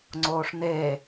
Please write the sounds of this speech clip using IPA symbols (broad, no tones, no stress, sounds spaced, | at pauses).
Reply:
ŋ͡ǀ oː ʂ n e